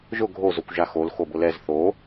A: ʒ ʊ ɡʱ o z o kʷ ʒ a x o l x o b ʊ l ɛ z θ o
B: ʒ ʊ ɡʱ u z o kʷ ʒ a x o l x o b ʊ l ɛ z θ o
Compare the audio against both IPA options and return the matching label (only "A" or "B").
A